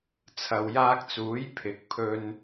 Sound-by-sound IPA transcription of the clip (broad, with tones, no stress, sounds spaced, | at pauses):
t͡sʰ ɐ˨ w j aː˧ k̚ t͡s uː˨˥ j pʰ ɪ˨˥ k̚ pʰ ɵ˧ n